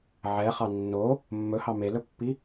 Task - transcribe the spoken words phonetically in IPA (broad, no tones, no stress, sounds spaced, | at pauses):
ʕ ɛ χ ɑ nː o | mː ɵ h ɑ m e l ɵ pː i